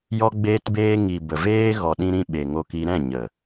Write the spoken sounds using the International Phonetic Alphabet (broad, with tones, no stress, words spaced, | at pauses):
jɔ˧ɡ͡beː˧tbeː˧ ŋi˨ bə˨veː˦ ɣɔ˨ɗĩ˧ɾĩ˧ ɓe˨ŋo˧ki˧ ɾɛ̃˦˨ɲə˨